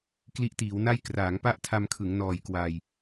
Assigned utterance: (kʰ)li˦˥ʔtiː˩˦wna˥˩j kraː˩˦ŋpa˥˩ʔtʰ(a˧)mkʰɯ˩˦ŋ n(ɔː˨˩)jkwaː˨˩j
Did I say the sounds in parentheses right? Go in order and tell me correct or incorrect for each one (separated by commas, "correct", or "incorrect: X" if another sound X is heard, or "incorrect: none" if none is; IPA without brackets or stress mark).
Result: incorrect: k, correct, correct